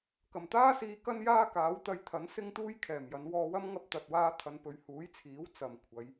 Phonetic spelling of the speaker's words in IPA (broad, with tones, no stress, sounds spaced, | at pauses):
k ɐ˨˩ m t̪ aː˥ s iː˧ k ɐ˥ n j aː˥ k aː˨˥ w t̪ ɐ˧ j t̪ʰ ɐ˨˥ n s ɪ˥ ŋ t̪ uː˥ j kʰ ɛː˨˩ m j ɐ˨˧ n w ɔː˧ w ɐ˥ m ŋ ɐ˥ p̚ t̪ ɐ˧ t̚ w aː˥ t̪ʰ ɐ˧ n p ɵ˧ ɥ h uː˨˥ j t͡sʰ iː˨˥ w t͡s ɐ˨ m kʷʰ ɐ˨˧ j